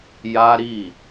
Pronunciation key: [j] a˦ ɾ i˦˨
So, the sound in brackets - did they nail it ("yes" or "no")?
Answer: yes